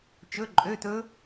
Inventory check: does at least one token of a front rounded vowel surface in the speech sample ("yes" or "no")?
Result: yes